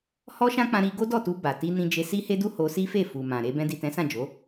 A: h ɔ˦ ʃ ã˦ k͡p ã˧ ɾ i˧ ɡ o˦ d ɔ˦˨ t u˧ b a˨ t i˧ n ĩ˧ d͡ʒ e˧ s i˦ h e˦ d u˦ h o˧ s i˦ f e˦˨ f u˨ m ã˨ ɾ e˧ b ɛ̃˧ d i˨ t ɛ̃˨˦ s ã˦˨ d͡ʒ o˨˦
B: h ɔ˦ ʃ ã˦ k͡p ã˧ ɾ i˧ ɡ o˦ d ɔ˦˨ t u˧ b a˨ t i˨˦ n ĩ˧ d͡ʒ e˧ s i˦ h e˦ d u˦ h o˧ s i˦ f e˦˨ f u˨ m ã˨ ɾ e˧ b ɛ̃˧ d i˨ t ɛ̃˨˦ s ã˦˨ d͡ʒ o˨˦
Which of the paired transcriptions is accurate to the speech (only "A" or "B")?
A